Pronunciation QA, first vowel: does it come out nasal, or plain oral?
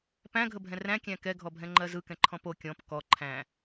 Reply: nasal